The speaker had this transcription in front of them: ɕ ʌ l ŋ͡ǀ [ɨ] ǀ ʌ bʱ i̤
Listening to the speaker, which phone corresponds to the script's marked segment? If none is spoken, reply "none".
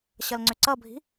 ʏ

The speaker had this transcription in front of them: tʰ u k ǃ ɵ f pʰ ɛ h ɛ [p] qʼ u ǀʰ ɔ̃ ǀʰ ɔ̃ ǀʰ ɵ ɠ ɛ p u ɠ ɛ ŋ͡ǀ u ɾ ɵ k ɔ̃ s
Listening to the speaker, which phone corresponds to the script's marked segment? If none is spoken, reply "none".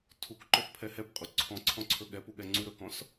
p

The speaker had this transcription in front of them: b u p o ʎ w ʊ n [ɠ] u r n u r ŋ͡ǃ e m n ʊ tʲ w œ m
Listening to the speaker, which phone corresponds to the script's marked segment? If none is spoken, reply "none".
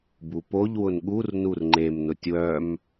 ɠ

